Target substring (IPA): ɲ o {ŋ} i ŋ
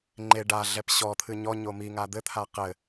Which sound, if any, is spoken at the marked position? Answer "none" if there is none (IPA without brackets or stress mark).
m